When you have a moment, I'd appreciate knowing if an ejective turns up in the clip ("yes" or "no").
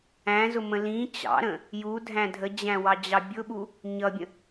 no